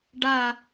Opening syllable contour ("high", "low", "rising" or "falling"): falling